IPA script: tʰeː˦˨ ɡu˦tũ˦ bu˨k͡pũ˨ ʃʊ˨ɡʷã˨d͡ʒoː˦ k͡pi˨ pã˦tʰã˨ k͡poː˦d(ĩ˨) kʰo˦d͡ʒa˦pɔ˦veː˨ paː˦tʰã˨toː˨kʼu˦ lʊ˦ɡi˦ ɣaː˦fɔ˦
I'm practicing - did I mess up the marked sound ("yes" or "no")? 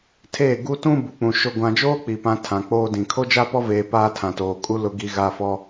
no